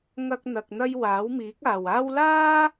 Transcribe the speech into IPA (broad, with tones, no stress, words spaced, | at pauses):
ŋɐ˥k̚n̪ɐ˧k̚n̪ɐ˥j waː˨˥wmiː˨˥k̚aː˨waː˥w laː˥